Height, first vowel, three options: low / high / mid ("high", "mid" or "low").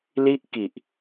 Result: high